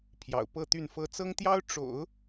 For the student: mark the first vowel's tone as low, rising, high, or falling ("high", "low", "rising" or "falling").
low